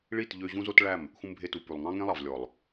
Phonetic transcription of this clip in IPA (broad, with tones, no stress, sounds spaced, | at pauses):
ɭ i˦˨ t ʎ ø˧ ʑ ũ˦ z o˦ t ɭ æ˦˨ m | x ũ˧ m bʱ e˧ t u˨ p ʉ˨ lˠ ŋ ɑ̃˦ ŋ ẽ˦ lˠ ɑ˨ v lʲ ɔ˨ lˠ